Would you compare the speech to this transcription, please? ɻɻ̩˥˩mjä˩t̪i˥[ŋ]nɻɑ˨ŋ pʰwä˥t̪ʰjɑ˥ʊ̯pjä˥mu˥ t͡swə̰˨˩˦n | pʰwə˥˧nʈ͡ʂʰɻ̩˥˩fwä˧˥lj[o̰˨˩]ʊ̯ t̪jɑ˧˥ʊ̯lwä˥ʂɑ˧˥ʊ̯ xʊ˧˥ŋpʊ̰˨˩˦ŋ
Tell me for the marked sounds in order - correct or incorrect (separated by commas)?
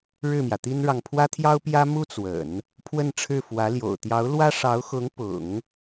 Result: incorrect, correct